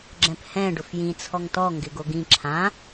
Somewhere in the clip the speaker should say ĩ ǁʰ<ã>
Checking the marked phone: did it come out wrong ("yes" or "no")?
no